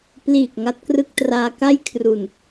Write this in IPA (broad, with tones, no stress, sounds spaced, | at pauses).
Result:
p l iː˨˩ k̚ ŋ a˦˥ t̚ k r ɯ˥˩ k̚ t r aː˧ k a˥˩ j kʰ r u˨˩ n